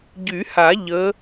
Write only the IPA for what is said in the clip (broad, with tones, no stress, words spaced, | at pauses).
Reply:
ɟy˨˩˦ha˨˩˦ ʎə˨˦